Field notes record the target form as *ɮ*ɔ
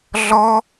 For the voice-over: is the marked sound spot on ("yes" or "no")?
yes